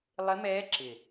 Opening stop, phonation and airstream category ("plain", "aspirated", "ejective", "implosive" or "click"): click